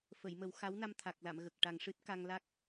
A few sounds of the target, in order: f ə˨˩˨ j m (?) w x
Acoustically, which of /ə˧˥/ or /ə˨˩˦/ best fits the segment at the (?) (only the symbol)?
ə˨˩˦